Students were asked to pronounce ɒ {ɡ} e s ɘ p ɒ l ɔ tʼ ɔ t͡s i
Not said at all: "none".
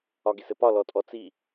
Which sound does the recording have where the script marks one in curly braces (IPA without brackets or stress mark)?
ɡ